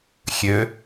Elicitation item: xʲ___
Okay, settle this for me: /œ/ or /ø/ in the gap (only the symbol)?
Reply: ø